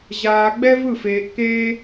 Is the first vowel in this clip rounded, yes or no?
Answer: no